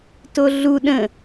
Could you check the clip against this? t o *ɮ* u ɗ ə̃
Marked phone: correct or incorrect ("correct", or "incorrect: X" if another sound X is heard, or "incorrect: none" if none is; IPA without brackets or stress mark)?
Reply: correct